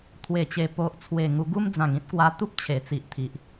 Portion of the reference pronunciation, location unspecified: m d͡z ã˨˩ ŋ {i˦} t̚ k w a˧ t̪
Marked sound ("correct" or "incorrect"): incorrect